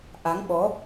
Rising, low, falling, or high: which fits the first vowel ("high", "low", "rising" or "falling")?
rising